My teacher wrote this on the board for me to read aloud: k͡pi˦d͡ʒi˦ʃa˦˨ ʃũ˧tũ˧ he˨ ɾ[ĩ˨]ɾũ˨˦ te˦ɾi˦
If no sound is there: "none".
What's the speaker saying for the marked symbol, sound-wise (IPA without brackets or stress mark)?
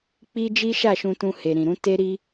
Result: ĩ˨